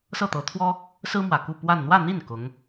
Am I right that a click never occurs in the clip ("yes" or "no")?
yes